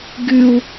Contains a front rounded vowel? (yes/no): yes